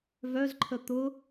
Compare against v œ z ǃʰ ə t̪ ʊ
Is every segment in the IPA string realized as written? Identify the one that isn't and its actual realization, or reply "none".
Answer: none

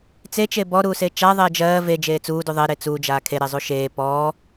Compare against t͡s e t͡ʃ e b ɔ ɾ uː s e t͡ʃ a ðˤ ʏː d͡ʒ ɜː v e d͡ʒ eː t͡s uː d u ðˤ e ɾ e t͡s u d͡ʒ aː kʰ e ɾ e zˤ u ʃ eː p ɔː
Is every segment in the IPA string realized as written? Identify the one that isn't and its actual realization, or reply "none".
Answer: ʏː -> ɛː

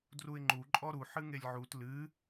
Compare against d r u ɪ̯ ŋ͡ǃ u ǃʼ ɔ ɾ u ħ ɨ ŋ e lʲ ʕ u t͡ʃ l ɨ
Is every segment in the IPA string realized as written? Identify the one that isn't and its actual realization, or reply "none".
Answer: t͡ʃ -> t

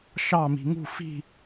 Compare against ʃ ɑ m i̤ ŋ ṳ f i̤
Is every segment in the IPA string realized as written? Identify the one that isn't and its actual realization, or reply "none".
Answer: none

